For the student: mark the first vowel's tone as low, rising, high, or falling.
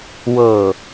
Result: low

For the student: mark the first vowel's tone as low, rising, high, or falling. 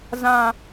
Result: low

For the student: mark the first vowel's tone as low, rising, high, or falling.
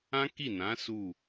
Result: high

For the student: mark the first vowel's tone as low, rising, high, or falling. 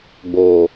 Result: low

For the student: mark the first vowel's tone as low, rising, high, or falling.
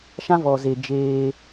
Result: high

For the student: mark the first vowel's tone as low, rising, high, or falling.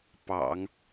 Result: low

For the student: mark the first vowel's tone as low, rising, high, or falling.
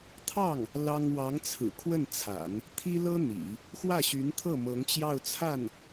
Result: falling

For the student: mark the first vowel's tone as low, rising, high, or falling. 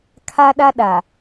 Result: high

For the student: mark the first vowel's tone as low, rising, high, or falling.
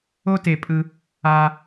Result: high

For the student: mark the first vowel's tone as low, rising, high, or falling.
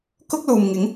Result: high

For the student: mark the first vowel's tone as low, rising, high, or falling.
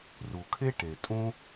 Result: low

